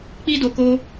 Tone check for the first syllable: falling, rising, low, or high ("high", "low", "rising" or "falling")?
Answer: high